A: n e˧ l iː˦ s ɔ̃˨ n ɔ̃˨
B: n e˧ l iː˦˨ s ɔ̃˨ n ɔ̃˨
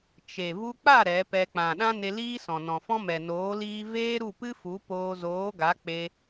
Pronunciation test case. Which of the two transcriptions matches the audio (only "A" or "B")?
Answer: A